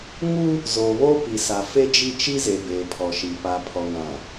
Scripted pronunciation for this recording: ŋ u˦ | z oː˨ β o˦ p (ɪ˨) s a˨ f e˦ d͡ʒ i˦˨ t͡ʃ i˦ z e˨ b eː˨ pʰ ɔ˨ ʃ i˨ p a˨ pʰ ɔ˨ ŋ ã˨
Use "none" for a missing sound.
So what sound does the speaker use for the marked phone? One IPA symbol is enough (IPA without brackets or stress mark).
i˨